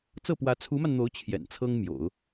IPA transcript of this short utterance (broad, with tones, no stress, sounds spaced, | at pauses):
t͡s ɤ˥˩ p w ä˧˥ t͡sʰ u˧˥ m a˧ n n̪ o˧˥ ʊ̯ t͡ɕʰ j ɛ̰˨˩ n t͡sʰ ɤ˥ ŋ m j o̰˨˩˦ ʊ̯